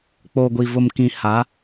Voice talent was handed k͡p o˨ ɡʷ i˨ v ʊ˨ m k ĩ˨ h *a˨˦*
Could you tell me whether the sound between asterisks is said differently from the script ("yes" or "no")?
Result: no